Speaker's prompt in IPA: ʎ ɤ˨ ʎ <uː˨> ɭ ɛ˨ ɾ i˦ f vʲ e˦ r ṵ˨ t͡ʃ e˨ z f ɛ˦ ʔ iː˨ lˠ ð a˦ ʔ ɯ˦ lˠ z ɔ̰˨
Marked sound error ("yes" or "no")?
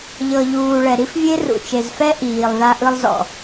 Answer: no